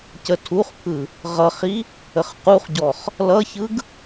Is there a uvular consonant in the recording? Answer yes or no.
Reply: yes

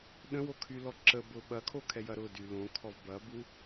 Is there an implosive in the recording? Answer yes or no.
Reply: yes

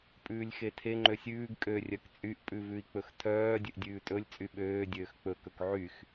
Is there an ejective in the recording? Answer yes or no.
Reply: yes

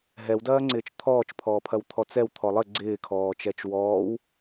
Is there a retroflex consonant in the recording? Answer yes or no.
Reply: no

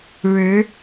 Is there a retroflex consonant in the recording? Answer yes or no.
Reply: yes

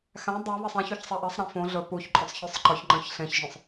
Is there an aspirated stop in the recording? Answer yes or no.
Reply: no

